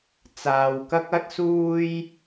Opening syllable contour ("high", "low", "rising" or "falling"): low